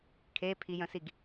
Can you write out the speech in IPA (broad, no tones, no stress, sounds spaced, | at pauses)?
kʰ e pʰ i j ə̃ s i ɡ